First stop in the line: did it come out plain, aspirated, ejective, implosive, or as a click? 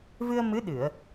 implosive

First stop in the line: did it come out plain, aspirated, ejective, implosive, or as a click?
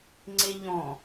click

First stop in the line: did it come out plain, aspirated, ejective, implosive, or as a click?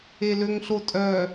ejective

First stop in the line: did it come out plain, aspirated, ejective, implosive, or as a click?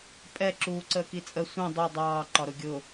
ejective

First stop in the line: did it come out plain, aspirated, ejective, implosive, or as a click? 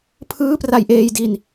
aspirated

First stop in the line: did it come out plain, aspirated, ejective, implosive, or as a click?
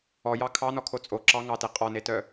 aspirated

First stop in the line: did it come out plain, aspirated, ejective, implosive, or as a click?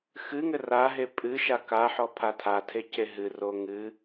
ejective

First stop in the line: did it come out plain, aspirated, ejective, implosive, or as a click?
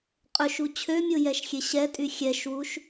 ejective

